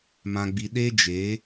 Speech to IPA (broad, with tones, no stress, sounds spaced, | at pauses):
m ã˦ ɡ͡b i˦ ɗ e˦ d͡ʒ e˨˦